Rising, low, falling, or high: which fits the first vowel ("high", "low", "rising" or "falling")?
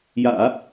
low